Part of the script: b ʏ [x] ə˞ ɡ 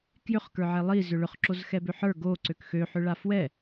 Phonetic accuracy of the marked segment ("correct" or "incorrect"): incorrect